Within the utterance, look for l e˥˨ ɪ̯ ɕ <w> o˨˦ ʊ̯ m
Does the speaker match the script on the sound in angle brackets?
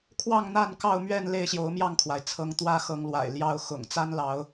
no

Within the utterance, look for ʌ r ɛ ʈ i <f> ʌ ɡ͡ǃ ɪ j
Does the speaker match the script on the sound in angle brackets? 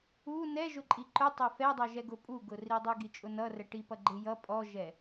no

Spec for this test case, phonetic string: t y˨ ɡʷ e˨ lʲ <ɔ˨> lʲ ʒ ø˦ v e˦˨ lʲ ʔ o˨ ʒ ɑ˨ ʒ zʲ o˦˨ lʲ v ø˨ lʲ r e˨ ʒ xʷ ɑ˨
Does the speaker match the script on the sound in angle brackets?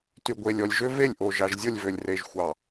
yes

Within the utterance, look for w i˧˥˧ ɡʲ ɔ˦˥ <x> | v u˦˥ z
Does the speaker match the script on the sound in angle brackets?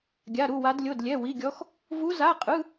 yes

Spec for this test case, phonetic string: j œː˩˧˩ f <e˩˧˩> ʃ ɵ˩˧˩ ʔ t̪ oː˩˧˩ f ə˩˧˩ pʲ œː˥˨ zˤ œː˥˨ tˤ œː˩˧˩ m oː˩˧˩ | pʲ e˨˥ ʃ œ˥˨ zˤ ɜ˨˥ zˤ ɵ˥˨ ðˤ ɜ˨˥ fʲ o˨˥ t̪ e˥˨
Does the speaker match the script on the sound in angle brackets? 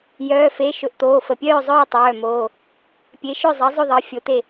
yes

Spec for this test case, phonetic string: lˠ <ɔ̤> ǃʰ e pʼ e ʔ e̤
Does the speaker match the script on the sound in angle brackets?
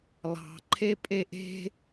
no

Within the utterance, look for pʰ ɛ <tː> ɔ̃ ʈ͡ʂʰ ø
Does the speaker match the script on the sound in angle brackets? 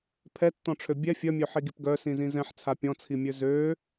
yes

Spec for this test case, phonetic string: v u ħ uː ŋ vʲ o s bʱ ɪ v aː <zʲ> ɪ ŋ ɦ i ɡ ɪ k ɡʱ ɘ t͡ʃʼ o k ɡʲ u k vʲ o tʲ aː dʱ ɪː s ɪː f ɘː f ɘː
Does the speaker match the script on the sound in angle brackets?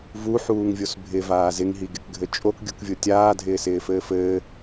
no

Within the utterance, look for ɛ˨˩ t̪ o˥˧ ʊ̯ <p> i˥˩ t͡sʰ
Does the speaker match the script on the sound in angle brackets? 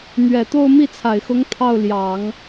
no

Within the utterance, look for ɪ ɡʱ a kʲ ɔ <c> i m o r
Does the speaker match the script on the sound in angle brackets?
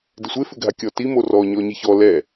no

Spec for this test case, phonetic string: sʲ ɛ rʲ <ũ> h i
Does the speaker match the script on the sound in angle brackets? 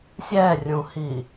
yes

